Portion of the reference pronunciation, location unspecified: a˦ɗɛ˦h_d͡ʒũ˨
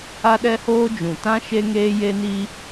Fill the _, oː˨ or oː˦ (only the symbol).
oː˦